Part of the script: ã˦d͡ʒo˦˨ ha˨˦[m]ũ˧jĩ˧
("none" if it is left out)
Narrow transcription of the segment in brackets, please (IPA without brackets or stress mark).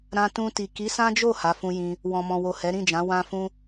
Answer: f